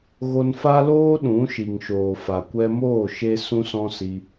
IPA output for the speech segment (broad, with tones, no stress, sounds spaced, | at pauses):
ɣ o˧ n f a˦ l oː˦ ɗ ũ˨˦ ʃ i˨ ŋ ʃ oː˨ f a˨ kʷ ɛ˧ m oː˦˨ ʃ e˧ s ũ˦ s ɔ̃˦ s i˧